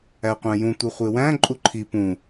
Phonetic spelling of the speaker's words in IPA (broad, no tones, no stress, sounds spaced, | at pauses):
æ qʷ æ̃ j ũ tʷ ɯ χʷ e w æ̃ ǃʼ u ǃʰ i p ũ